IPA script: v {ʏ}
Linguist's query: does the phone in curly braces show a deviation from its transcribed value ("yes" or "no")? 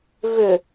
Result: no